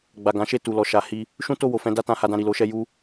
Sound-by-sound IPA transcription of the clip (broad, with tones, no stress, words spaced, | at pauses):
ɡ͡ba˨ɡã˨˦ ʃe˦˨tu˨lɔ˨ ʃa˨˦hi˧ | ʃũ˦to˦˨wo˨fɛ̃˨˦ da˦tã˧ha˧dã˧ ɾi˨lo˨˦ʃɛ˧ ju˦